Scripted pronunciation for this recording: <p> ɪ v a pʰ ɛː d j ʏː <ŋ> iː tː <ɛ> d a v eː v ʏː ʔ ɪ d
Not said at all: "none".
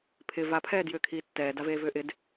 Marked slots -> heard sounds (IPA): pʰ, kʰ, ɛː

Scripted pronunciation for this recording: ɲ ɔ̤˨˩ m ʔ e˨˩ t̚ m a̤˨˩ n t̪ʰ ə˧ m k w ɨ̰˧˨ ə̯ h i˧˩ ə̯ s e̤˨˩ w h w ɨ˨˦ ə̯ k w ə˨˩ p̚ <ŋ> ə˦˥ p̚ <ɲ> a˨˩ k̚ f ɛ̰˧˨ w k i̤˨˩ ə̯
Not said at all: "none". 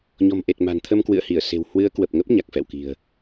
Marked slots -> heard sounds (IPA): ŋ, ɲ

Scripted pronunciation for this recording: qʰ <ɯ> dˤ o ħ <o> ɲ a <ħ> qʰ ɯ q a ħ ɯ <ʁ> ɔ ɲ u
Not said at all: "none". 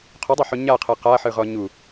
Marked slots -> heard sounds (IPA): u, u, none, ʁ

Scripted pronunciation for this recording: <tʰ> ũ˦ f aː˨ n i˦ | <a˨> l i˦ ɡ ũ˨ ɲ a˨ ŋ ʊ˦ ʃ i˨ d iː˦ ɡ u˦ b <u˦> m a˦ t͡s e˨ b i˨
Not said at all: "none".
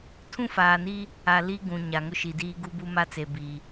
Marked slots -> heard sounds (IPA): tʰ, a˨, u˦

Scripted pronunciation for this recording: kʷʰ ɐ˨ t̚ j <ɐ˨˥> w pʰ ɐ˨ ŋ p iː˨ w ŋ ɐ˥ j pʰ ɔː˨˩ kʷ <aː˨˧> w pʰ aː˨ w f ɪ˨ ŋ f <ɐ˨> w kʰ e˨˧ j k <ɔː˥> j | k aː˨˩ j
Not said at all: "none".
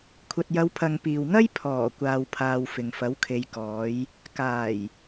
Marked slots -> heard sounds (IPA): ɐ˨˧, aː˨, ɐ˨˥, ɔː˨˧

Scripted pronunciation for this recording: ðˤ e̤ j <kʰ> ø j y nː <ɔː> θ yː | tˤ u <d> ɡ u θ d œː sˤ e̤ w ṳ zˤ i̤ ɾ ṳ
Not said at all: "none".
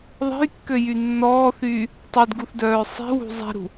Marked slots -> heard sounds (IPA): kː, ɔː, d

